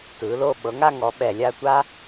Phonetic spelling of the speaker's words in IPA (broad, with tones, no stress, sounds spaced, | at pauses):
t ɯː˩˧ l o˥˧ ɓ ɤ˩˧ ŋ a˥˧ ŋ ɔ˩˧ ɓ ɛ˧˩ lʲ a˥˧ tʷ a˥